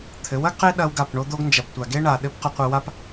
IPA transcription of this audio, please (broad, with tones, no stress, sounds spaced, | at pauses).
t̪ʰ ɘ˨˦ w ɐ˦ ɡ q e˦ ɗ ɐ˦ w ɡ a˦˨ p ɳ o˦ d̪ o˦ ɡ n d͡ʒ ɐ˨ p tʷ a˨ ɡ e˦ ɳ a˨ ɗ ɘ˦ p q a˧ qʷ ɘ˧ w a˦ p